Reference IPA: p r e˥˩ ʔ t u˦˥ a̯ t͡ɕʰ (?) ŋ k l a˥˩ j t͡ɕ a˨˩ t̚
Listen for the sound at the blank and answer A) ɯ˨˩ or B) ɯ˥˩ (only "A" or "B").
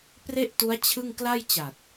B